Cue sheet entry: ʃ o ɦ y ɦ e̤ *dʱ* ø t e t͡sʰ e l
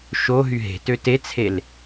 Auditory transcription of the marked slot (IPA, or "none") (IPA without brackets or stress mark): t